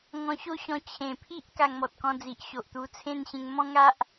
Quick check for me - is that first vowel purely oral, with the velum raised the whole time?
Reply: no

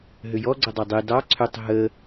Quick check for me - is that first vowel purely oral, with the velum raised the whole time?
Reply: yes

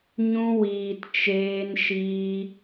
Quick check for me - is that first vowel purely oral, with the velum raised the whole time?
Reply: no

